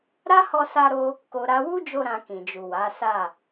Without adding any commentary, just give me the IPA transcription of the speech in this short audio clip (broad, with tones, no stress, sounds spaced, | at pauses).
ɾ a˦ h ɔ˧ s a˧ ɾ o˧ | k o˨ ɾ a˧ w u˦ d͡ʒ o˧ ɾ ã˧ k ĩ˨ d͡ʒ u˨ w a˨˦ s a˦˨